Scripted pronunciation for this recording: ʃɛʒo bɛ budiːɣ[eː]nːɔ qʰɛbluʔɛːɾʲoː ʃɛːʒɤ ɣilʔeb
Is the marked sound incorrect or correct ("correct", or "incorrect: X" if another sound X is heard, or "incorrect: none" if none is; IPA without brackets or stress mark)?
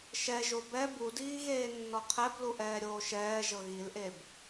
correct